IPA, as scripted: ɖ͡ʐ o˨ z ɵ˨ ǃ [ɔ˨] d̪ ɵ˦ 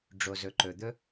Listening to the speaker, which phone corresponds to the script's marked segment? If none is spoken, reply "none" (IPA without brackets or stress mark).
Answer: ɵ˨